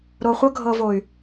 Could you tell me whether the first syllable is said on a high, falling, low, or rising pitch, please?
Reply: low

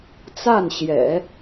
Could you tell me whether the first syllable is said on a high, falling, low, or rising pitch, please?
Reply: falling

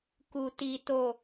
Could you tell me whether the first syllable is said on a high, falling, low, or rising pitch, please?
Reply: low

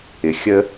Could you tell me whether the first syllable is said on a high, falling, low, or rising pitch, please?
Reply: low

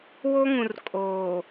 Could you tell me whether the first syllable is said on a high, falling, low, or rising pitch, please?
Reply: high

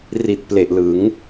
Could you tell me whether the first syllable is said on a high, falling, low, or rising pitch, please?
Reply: low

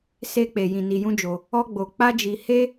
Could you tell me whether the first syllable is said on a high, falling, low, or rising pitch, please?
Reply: high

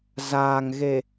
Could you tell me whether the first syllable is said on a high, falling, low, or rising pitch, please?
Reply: low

